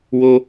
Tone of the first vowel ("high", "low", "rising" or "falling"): high